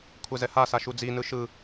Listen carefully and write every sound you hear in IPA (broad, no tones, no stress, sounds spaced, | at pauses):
kʷʰ ɛ z ɛ h a s a ʃ u d͡z i n ɯ ʃ ɯ